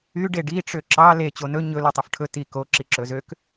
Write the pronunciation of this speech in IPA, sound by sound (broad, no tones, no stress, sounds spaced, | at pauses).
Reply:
y ɖ e ɖ i ʈ͡ʂ ø ǁ ɑ l e t͡ɕ o n ɵ ɲ ɵ l u tˤ ɵ f ʈʰ ɵ t i k o ǁ i ǁ ɵ z ø k